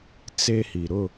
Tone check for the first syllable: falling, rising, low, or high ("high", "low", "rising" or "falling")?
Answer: high